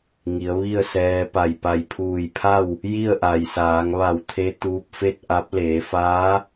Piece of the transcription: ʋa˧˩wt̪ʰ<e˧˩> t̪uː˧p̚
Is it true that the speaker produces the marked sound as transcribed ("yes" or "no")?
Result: no